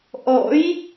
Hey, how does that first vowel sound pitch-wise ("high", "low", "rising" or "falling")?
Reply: rising